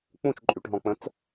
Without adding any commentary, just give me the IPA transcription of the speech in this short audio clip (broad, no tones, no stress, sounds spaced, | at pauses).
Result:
k͡p ũ t͡ʃ ǃʼ y ʈ ɦ ɔ̃ k͡p ə̃ t͡s